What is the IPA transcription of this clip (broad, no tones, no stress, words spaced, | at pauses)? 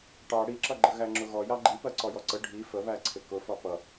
ʈɑ ɽiǁʌɡ͡ǃə ɣæŋ͡ǁʊɣɔ jɑɡ͡ǃi pɜǀɔjɔǀə ɖʱi fəβæ ǀʰɪkʊ fɒpʌ